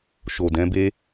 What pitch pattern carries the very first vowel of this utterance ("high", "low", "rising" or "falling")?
low